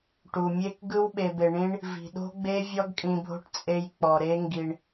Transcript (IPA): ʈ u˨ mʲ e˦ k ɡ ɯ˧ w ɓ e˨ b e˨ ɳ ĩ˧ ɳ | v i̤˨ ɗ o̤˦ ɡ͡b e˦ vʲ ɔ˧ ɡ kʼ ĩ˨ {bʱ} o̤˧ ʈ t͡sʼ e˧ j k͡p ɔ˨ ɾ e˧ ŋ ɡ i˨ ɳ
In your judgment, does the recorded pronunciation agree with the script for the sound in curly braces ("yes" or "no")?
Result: yes